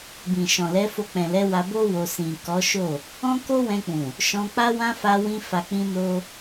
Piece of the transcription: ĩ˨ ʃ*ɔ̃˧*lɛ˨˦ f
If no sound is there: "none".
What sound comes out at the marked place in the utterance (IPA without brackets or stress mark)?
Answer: ɔ̃˨